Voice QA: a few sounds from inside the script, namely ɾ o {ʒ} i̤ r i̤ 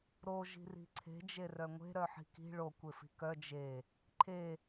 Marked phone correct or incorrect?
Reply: correct